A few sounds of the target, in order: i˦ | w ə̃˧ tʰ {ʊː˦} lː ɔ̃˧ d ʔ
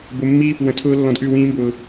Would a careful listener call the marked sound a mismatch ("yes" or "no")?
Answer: no